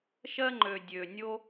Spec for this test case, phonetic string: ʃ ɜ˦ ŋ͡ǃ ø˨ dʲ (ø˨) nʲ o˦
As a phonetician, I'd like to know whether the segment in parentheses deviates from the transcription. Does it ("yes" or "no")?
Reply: no